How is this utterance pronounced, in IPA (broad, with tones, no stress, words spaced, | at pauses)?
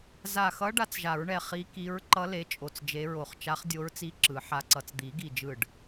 za˧˩xʌ˧˥ ɖa˧˥t͡sʒa˨˩˦ɹɳɛ˧˩ χi˧˥ki˧˥ɹ ǃʌ˧˥ le˧˥t͡ʃʼo˧˩t͡sd͡ʒe˧˥ɹo˧˩χ t͡ʃa˧˥χdʲo˧˥ɹt͡si˧˥ ǁɯ˨˩˦ħa˧˥ǀʌ˧˩t͡s d̪i˨˩˦ɡi˧˩d͡ʒɯ˧˩ɖ